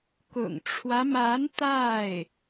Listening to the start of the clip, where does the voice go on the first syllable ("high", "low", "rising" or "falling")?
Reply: low